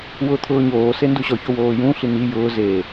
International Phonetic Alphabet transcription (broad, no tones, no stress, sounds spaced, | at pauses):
w ʊː t̪ʰ ʊː ɲ oː s e n d u ɕ ɔ ç o w oː j ũ ɬ i n̪ i j ʊː z e